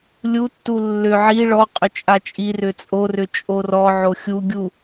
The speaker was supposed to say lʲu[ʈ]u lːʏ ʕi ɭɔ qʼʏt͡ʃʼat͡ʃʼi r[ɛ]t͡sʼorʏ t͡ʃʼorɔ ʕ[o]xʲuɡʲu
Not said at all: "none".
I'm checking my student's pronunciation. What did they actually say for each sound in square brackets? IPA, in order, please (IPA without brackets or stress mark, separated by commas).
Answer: tː, ʏ, o